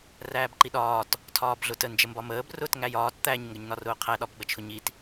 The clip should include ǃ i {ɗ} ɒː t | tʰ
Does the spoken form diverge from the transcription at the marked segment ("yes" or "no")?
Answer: no